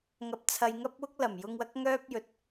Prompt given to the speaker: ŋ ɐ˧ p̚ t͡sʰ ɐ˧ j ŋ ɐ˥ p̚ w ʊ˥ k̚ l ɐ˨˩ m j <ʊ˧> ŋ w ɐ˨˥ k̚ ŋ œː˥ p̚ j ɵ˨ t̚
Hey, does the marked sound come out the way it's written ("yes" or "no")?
yes